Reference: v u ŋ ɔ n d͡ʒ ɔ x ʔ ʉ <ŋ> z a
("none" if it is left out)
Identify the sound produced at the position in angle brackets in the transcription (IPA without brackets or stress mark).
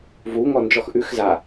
x